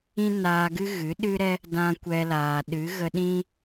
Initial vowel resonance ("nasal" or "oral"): nasal